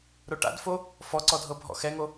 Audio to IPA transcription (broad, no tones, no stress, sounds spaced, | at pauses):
ɾ o ʈ a̰ d f o | f ɔ ǀ ɔ dʱ ɤ bʱ ɔ̰ x ɛ ŋ o